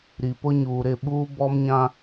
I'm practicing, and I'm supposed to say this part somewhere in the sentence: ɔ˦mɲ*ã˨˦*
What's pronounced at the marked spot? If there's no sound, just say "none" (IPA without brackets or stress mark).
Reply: ã˦